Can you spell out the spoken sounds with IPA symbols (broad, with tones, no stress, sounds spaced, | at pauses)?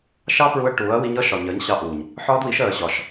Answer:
ʃ ɑ˦ p ɹ u˧ ɐ̯ ʈ uː˨˦ ɐ̯ w i˧ ɲ ʌ˦ ʃ ɒ˨ ɲ ɜ˨˦ ɲ ɕ ɑ˧ ʔ uː˨ ɲ | ħ ɒː˦ d w i˨˦ ʃ ɜː˨ ɕ ɒ˨ ʃ